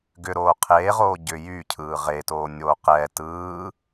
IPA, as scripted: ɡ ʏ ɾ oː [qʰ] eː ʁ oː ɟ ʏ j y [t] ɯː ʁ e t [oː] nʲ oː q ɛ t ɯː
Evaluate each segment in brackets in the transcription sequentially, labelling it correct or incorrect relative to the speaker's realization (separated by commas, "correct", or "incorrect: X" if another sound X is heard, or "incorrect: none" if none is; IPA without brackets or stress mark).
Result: correct, incorrect: cʰ, correct